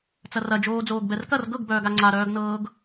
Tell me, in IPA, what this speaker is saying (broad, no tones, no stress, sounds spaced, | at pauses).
t͡s ɐ r ɐ d͡ʒ oː d͡z oː ɡ b ɛ r k ɐ r ɡ ɤ ɡ b œː ɡ a ŋ͡ǀ a ɾ œː ɡ n ɤː ɡ